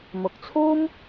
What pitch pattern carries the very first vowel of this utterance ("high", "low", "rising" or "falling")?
low